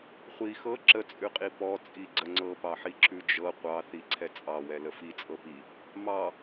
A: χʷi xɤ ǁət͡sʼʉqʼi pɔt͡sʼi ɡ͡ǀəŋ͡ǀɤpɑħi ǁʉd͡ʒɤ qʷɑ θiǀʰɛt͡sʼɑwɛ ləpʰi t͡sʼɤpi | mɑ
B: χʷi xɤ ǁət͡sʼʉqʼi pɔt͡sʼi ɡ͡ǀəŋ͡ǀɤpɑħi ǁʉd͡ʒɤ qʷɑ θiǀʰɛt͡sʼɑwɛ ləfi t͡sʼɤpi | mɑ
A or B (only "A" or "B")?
B